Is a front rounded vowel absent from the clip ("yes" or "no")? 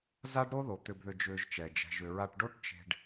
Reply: no